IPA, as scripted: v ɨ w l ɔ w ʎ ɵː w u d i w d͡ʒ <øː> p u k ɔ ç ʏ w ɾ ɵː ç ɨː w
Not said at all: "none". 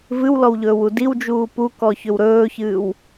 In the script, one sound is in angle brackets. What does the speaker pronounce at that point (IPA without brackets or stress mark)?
uː